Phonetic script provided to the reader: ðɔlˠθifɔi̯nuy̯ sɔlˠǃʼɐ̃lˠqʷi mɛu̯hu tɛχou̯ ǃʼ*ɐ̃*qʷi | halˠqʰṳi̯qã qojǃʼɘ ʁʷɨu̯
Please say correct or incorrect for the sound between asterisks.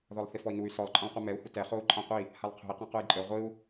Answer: incorrect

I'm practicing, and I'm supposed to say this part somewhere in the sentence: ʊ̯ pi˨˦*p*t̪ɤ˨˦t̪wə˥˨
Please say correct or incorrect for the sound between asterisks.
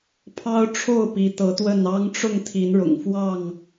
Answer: incorrect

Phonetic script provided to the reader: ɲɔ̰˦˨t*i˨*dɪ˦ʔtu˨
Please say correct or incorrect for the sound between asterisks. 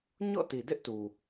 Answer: correct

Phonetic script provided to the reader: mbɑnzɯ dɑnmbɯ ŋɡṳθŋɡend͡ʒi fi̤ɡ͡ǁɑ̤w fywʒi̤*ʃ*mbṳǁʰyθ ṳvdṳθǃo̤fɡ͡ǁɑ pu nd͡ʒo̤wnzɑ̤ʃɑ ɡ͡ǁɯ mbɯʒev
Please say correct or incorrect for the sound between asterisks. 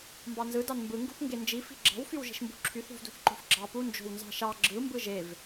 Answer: correct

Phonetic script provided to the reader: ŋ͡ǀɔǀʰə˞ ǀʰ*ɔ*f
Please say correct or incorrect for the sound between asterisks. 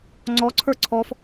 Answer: correct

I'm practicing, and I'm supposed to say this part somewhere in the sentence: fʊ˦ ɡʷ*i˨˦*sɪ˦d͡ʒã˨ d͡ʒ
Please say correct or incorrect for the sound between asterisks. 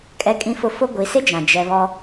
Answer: correct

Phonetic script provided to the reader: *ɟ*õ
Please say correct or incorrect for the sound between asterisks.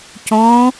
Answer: incorrect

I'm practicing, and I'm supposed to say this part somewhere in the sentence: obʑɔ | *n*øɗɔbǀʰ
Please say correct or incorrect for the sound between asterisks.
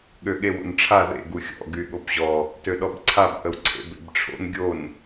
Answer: incorrect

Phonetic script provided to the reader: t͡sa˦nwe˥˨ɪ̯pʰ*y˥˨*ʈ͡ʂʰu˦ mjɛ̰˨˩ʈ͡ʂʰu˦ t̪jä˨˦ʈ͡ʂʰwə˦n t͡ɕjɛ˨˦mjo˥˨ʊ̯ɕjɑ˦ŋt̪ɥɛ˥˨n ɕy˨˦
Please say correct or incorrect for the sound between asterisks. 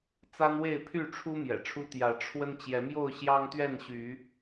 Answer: correct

